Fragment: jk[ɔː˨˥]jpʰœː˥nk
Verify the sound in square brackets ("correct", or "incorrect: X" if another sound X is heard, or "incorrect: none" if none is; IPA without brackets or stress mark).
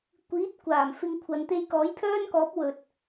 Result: correct